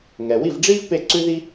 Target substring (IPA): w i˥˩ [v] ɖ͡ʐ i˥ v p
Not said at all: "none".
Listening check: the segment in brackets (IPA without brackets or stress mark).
v